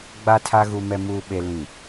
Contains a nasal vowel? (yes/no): yes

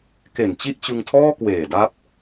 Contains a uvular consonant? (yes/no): no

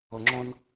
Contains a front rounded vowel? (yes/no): no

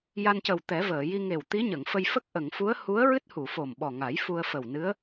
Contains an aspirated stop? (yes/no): no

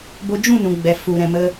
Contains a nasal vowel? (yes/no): yes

